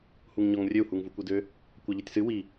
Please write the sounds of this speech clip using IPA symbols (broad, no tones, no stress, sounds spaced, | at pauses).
h u ŋ ɲ ɔ ŋ rʲ ø u̯ h u ŋ v u kʷ i d ø | kʷ a ʎ i tʲ s ɨ w i